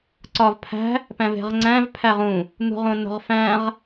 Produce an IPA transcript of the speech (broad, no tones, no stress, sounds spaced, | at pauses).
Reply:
ǀ ɒ v pʰ æ̤ | p æ̃ v e̤ ʁ ŋ͡ǀ æ̃ v pʰ æ ʁ ũ | n̪ ṳ ʁ õ nː o̤ ʁ f æ̃ ʁ